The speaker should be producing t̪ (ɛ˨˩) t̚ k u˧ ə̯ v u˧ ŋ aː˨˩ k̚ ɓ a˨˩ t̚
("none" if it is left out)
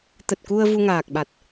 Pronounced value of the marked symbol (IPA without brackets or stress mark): ə˨˩